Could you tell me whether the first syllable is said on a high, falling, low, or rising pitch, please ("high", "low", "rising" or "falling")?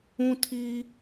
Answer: high